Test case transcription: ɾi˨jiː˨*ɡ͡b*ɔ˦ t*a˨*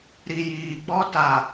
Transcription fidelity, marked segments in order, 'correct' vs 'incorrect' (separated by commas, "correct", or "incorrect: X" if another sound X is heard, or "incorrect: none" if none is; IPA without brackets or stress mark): correct, correct